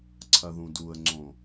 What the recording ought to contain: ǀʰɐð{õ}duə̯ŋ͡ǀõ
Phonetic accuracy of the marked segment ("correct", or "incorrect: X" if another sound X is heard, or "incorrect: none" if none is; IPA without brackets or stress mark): incorrect: ũ